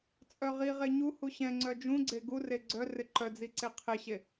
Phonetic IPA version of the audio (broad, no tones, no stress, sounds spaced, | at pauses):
t͡sʼ œ ʁ i ʁ e ɲ u h u ɕ ɛ̃ ŋ͡ǀ œ d͡ʒ ũ ɡ͡ǀ e ɡ u r e ɡ͡ǀ œ r ɪ ǃ œ d͡z i ǀ e qʰ ɪ ɕ e